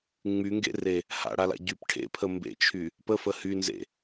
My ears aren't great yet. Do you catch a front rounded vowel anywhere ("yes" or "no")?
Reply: yes